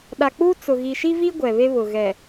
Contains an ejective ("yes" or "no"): no